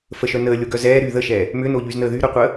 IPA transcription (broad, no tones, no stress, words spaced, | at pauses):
fəʃœ nəːlʲoɡœ zɛː ɾy ðəʃɛː | mʏnoʎyznəː ðyɾœqʷəː